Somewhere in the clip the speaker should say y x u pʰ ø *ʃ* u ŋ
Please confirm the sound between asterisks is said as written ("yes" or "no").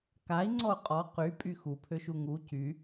yes